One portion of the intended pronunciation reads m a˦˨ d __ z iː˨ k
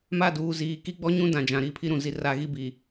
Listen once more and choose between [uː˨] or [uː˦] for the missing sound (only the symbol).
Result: uː˨